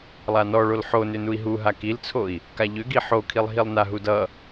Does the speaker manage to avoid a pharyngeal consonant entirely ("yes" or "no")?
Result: no